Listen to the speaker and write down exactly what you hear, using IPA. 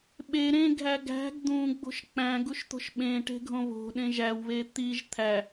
ɓ e ɾ ẽ ɡʱ æ ɡ æ̤ ɡ d̪ ũ ɡ͡b o̤ ʃ k͡p æ̃ ɡ u ʃ t̪ o̤ ʃ ɓ ẽ ʈ e̤ ɡʱ õ β o̤ ɗ ẽ ʒ æ w β e t̪ i ʒ t̪ʰ æ

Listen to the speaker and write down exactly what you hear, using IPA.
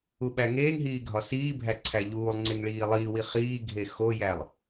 u ɓ æ ŋ eː ŋ ɦ iː ɡʱ ɒ s iː bʱ æ ǀʰ æ ʎ uː lˠ ŋ͡ǀ e ŋ ɭ iː lˠ iː w i χ iː ɡʱ e x o j æ lˠ

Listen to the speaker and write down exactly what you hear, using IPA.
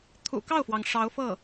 t̪ʰ ṵ˨˩ k ɑ˥˩ ʊ̯ f w ɑ˩ ŋ ʂ ɑ˧˥ ʊ̯ f ɤ˥˩

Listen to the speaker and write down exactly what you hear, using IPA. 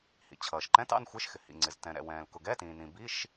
h ḭ˩ t͡ɕʰ ʌː˩ ʃ ǃ ɛ̃˧˥˧ t ɑ̰˧˥˧ n xʷ ɪː˧˥˧ ʃ x ɪ˩ h ḭ˩ ŋ͡ǀ ɪ˩ z t ɛ̃˩ ɾ ɛ̰˩ w ɛ̃ː˩ l k ʊ˩ ɡ ɛ˧˥˧ t ĩː˩ n ĩ˩ b i˧˥˧ ʃ

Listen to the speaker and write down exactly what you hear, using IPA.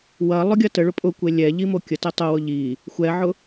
w ɐ lˠ ʊ ɡʲ ɐ t ə ɭ ʊ pʼ ʊ kʷ e lʲ ɛ ʎ i m o kʲ ə t e tˤ o w ʊ ʎ i | xʷ ɛ ʕ ʊ

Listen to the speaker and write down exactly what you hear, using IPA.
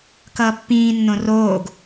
k ʌː pː ĩː nː õ r oː ɡ

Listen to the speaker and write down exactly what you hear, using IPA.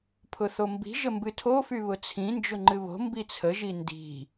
pʰ ʊ θ o m b i̤ ʒ ə m b ɨ tʰ o f y β ʊ t͡sʰ ĩ n d͡ʒ ʊ ŋ͡ǃ ɨ β o̤ m b i t͡sʰ ə ʒ i n d i̤

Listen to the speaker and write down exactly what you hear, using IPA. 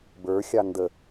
b ə˞ xʲ ɑ n d ə

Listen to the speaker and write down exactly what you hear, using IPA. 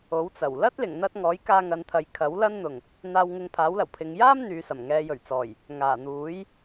o˨˥ w t͡s ɐ˨˩ w l ɐ˥ t̚ l ɪ˨˩ ŋ n̪ ɐ˧ t̚ ŋ ɔː˨˥ j k aː˧ ŋ ɐ˨˧ n t̪ʰ ɐ˨ j kʰ ɐ˨˥ w l ɐ˥ n n̪ ʊ˨˩ ŋ | n̪ aː˧ w ŋ ɪ˧ ŋ pʰ aː˨˥ w l ɐ˨˩ w pʰ ɪ˨ ŋ j aː˥ m n̪ yː˨ s ɐ˨˩ m ŋ ɛː˨ j ɵ˨˩ ɥ t͡s ɔː˨˩ j | ŋ aː˨˩ n̪ uː˨˥ j

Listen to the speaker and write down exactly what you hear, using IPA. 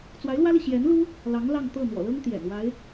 t͡s w a˧˥ ɪ̯ l w ä˥ l i˨ ɕ j ɛ˧˥ n l u˥ | l ɑ˧˥ ŋ l ɑ˥˧ ŋ t̪ ɤ˥˩ n̪ w ɔ̰˨˩ l ɤ˥ ŋ t̪ j ɛ̰˨˩ n w a˧˥ ɪ̯

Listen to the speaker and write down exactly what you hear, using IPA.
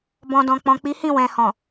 b ɔ̃˨ d ɔ̃˨ k͡p ɔ̃˨ k͡p i˨˦ h ĩ˦˨ w ɛ̃˨ h ɔ̃˨

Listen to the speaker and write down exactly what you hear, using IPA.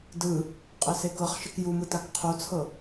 d ɯ | qʼ ɛ s e k ɤ χ ʃ ɯ k j u m ɯ t a k qʰ o t͡sʰ ɤ

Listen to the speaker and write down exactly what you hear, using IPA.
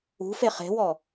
ṳ f e χ e̤ w ɔ

